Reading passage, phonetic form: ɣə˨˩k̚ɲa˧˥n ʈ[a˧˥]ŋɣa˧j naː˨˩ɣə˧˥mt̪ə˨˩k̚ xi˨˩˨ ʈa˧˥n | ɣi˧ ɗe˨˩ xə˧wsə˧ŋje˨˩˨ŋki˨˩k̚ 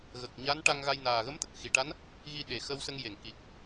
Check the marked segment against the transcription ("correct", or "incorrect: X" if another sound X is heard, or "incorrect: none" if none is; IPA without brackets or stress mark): incorrect: a˧